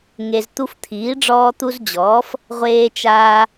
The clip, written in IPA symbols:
ŋ e˨ z t̪ u˦ f t̪ʰ iː˩˥ ɖ͡ʐ ɔː˦ t̪ u˦ z d͡ʑ ɔː˩˥ f | ʁʷ eː˦ t͡ʃ aː˦

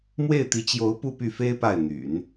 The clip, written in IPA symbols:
m w e˥˩ ɪ̯ t̪ i˧˥ t͡ɕ j o˧˥ ʊ̯ p u˥˧ p y˥˩ f e˥ ɪ̯ p a˥˩ ɪ̯ n̪ y̰˨˩˦ n

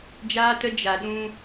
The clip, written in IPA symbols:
d͡ʒ aː˦ t ə˦ d͡ʒ a˧ ɗ ũ˦

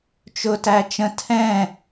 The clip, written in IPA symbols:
t͡ʃ ʊ t æ t͡ʃ ə̃ tʰ ɛ̃

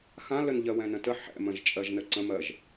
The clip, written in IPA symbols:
x ã l ə n ʎ ɜ w ɛ̃ n ə̃ t ə ħ ɛ̰ m ə̃ ʒ t͡ʃʼ ɜ ʒ n ə ǀ ə̃ m ɜ ʒ

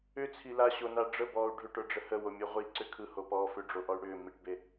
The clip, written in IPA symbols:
ʏ t͡sʰ i l a ɕ o n a ɖ͡ʐ ə b ɔː u̯ ɖʱ ʏ ʈ ə˞ ɖ͡ʐ ə h ə w o mʲ e ʁʷ i ǀ ʏ kʰ ɯ h o p ɔː f ʏ ɖ͡ʐ o ʔ ɔ y̯ ɽ ʏː m i ʈ b e

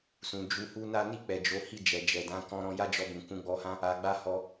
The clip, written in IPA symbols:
s ũ˨ d͡ʒ u˧ h u˦ n a˦ n i˦˨ k͡p ɛ˨ d͡ʒ o˨˦ h i˦˨ d͡ʒ ɛ˨ d͡ʒ ɛ˨ d ã˨˦ k ɔ̃˧ ɾ ɔ̃˧ j a˦ d͡ʒ ɔ˧ b ũ˨ k ũ˨˦ ɡ͡b ɔ˧ h ã˦ | a˧ ɡ͡b a˦ h ɔ˧

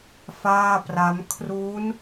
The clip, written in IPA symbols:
f aː˥˩ p r a˦˥ m kʰ r uː˦˥ n

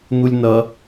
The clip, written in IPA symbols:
n̪ u lʲ n ʌ

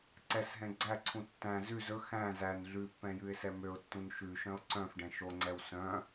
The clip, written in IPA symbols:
ǀ ɛ s ɦ ɛ̃ ɡ͡ǀ æ ǀʰ ũ tː æ̃ z ʉ z ɵ x æ̃ z æ n ɮ ʉ pː ɛ̃ j ʉ ɪ̯ s ɛ m ø ʊ̯ tː ũ n ʃ ʉ ʃ œ̃ ʊ̯ ǀ œ̃ f ɖ ɛ̃ ʃ o ŋ͡ǀ ɛ w s œ̃

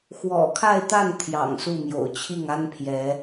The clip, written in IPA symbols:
x w ɔ̰˨˩ kʰ a˥˧ ɪ̯ t̪ a˥˩ n t̪ʰ j ɑ̰˨˩ ŋ s u˥˩ m j o̰˨˩ ʊ̯ t͡ɕʰ i˥˩ ŋ a˥ n pʰ j ɛ˧˥

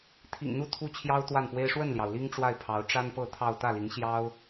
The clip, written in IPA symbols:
t̪ʰ ḭ˨˩ ŋ n̪ u˥˩ t̪ʰ u˥ t͡ɕʰ j ɑ˥ ʊ̯ t̪ w a˥˩ n p w e˥ ɪ̯ ʂ w ə˥˩ n l j ɑ˩ ʊ̯ l i˥ ŋ ʈ͡ʂ w a˥˩ ɪ̯ pʰ ɑ˧˥ ʊ̯ ʈ͡ʂ a˥ n p ɤ˥˧ t̪ʰ ɑ˥˧ ʊ̯ t̪ ä˥˩ l i˧˥ ŋ ɕ j ɑ˥ ʊ̯

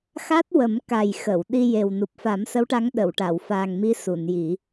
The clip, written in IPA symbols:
x a˦˥ t̚ w ə˨˩˦ m k a˨˩ j x ə˨˩˨ w ɗ i˧ j e˨˩ w n u˨˩ p̚ f a˨˩˦ m s ə˧˥ w ʈ a˧˥ ŋ ɗ ə˨˩˨ w ʈ a˨˩˨ w f a˨˩ ŋ m i˧˥ s u˨˩˨ n j i˨˩˦

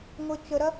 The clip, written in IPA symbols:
ŋʷ e t͡ʃ ə ɾ ɐ

